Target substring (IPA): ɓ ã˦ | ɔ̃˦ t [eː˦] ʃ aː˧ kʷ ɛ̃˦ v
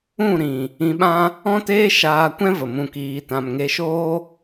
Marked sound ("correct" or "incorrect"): correct